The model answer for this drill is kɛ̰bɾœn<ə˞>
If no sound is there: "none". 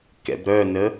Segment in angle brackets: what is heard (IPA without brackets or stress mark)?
ə